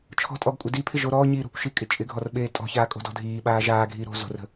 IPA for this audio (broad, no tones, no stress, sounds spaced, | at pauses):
t͡ʃʰ ɔ̤ tʼ ɔ ɡ kʷʼ ɪ d i pʰ ɪ ʒ o ɾ ɔː ɲ iː ɾ o̤ kʷ ʃ i kʼ ɪ t͡ʃʼ ɪ ɡʱ ɔ r ɓ eː tʼ ɔ̤ ç aː kʼ o̤ d ɔ̤ dʱ iː ɓ aː ʒ aː ɡʱ iː ɾ o̤ z o̤ r ə̤